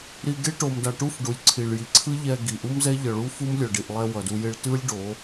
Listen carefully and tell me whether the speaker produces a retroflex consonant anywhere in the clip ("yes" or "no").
yes